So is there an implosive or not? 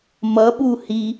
yes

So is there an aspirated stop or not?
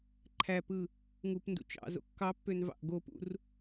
yes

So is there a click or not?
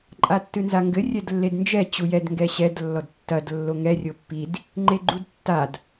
yes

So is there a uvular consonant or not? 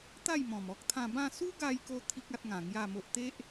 no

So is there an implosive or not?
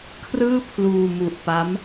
no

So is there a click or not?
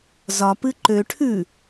yes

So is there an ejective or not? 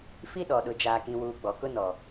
no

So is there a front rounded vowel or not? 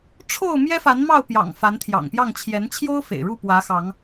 no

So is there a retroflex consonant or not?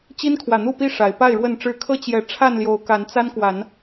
yes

